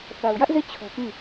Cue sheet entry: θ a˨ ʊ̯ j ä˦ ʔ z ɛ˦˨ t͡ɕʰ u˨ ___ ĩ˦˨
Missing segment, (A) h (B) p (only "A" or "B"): B